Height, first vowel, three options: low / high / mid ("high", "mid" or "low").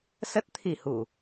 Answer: mid